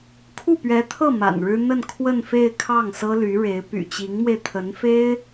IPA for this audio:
kʰ u˥˩ p ɥ ɛ˧˥ t̪ʰ ɤ˥˩ m a̰˨˩ n ɻ ɻ̩˥ n̪ ə˥˧ n kʰ w ə˥˧ n f e˥˧ ɪ̯ kʰ ɑ˥˩ ŋ s ɤ˥ l y˧˥ ɻ e˧˥ ɪ̯ p y̰˨˩ t͡ɕ i˧˥ ŋ m w e˧ ɪ̯ t̪ʰ ə˧˥ n f e˥ ɪ̯

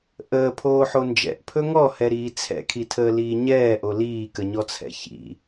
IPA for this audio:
ʔ əː pʰ oː ħ o n d͡ʒ ɛ̰ ʔ pʰ ɵ ŋ ɔ h ɛ ɾ iː t͡sʰ ɛ̰ kʰ i tʰ əː l iː ɲ ɛː ʔ o l iː k ə ɲ ɔ t͡sʰ ɛ̰ ç ḭ

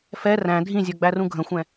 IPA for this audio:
f ɛ r æ̃ dʱ ĩ zʲ ə˞ ɡ͡b æ r ũ ɡʱ ə̃ xʷ ɛ̃

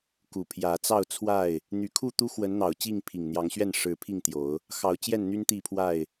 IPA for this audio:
k u˨˩ pʰ j ä˨˦ t͡s ɑ˥˨ ʊ̯ t͡sʰ w a˥˨ ɪ̯ | n̪ y˨˦ kʰ u˥˨ t̪ u˦ x w ə˨˦ n n̪ ɑ˨˩ ʊ̯ t͡ɕ i˥˨ ŋ pʰ i˨˩ ŋ n̪ j ɑ˨˦ ŋ ɕ ɥ ɛ˥˨ n ʂ ɻ̩˨˦ pʰ i˥˨ ŋ t̪ j o˨˦ ʊ̯ | x ɑ˨˦ ʊ̯ t͡ɕ j ɛ˥˨ n n̪ y˦ n t̪ i˥˨ pʰ w a˥˨ ɪ̯

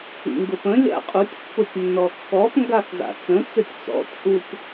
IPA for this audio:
ḭ ŋ ɡ ʊ p ə̃ lʲ a̰ qʼ u tʲ pː ʊ tʲ nː ɔ kː ɔ p ŋ ɡ a x z a̰ t͡s ə̃ t͡s ɘ tʲ t͡s ɔ̰ tʲ ʔ u p

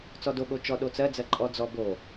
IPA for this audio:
t͡s ɔ d o ɠ o t͡ʃ ɔ ɗ o t͡s ɜ d͡z ɜ ǃʼ ɔ d͡z ɔ b o

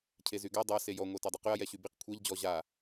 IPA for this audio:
cʰ e z y ɡ a dˤ a s e j ɔ ŋʷ a t a dˤ y q y ɐ̯ j ɛ ɕ y b i q kʷʰ ɛ ʎ d͡ʑ ɔ ʑ a

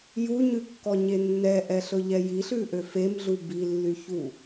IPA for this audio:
j u ɲ ʉ kː ɔ ɲ e nː ɛ ʔ ɛ ɬ ɵ ʎ ɛ j i ɬ ʉ ʔ ø f e m ɮ u b i lː y ç u

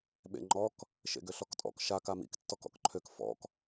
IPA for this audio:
ɓ ḛ ŋ͡ǃ ɔ k | ʃ ḛ ɡ ø ɬ ɔ k tʼ ɔ̰ k ʃ a k a m ḭ k tː ɔ k ɔ̰ k ǃʰ ø k f ɔ̰ k

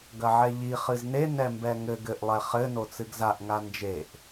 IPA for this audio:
ɡ ɐ ʕ ɛ ʎ i χ ɨ z n e n ɛ m b ɛ ŋ ɘ ɡ ɘ ʔ lˠ ɛ χ ɘ n o t͡s ɨ ɡ z a ʔ ŋ a n d͡ʒ e ʔ

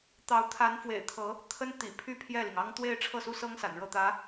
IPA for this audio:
t̪ ɑ˧˥ ʊ̯ t̪ʰ a˧˥ n f w ḛ˨˩ ɪ̯ t̪ʰ ɤ˧˥ | t̪ʰ ə˥ n t̪ ḭ˨˩ pʰ y˥ pʰ j ɛ˥˩ l i˩ ŋ ɑ˥ ŋ t̪ w e˥˧ ɪ̯ ʈ͡ʂʰ ɤ˥˩ s u˥ s ɤ˥ ŋ s a̰˨˩ n ɻ ɤ˥˩ t̪ ä˧˥

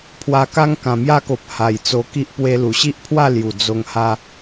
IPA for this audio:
pʰ w a˧ k a˦ ŋ k ã˨˩ m j a˦ k o˨ p̚ h a˨˩ j t͡s o˧ k i˦ ʔ p w e˧ l u˨˩ ɕ i˦ ʔ pʰ w a˥˧ l j u˨˩ d͡z o˧ ŋ h a˧

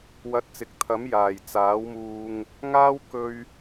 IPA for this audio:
w ɐ˧ t̚ t͡s ɪ˨ k̚ t̪ʰ ɐ˨˥ m j aː˨˩ j t͡s aː˨˥ w m uː˧ ŋ | ŋ aː˥ w k ɵ˧ ɥ

